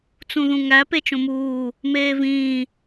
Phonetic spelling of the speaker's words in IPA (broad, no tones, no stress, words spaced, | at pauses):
t͡sũðũŋæ pet͡ʃõmuː | meːvĩː